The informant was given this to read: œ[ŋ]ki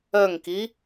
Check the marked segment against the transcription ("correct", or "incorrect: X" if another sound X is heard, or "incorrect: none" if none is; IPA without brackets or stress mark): correct